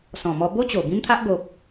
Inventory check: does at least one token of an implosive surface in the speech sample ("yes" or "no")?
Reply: no